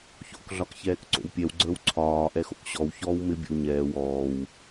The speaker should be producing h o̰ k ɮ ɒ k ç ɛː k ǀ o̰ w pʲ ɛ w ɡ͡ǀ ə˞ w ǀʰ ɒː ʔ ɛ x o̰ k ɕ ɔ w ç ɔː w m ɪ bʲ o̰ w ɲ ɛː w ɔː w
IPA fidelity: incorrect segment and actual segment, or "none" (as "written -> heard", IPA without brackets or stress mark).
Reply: h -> ç